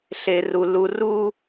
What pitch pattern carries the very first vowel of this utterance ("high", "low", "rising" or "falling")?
high